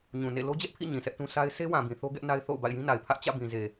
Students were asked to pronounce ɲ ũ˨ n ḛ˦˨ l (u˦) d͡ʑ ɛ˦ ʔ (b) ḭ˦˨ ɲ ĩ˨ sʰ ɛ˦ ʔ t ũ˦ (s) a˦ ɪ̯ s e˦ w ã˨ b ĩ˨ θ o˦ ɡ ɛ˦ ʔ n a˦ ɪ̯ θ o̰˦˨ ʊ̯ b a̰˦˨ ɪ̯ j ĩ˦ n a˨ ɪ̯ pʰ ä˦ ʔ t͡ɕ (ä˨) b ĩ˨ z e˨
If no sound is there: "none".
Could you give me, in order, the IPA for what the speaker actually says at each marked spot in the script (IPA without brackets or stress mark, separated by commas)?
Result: o˦, pʰ, s, ä̰˦˨